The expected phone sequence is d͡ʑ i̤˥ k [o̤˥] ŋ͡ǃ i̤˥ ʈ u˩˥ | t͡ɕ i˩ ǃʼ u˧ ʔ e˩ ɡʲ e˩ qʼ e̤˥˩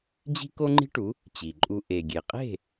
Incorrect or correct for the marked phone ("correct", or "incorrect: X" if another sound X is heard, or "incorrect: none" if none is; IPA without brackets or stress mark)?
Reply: incorrect: o˥